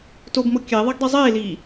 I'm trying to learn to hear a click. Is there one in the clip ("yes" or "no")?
no